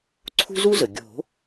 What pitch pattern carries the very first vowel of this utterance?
high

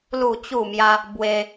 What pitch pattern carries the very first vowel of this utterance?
falling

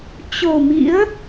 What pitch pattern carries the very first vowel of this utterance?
low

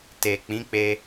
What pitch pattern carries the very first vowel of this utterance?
low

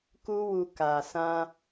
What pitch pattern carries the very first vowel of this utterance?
high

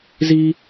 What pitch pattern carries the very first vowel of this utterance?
high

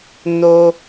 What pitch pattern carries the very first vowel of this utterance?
high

